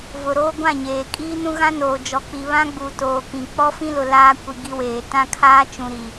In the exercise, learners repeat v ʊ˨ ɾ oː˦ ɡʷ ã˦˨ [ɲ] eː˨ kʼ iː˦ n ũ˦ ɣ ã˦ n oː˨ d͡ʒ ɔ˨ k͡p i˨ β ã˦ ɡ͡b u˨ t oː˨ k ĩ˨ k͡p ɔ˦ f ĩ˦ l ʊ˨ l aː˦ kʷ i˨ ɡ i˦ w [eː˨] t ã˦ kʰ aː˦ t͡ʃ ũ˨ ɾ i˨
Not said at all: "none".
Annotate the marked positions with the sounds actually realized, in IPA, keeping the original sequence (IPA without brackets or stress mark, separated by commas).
ɲ, eː˨